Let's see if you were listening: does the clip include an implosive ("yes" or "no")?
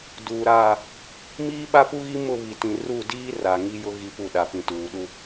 yes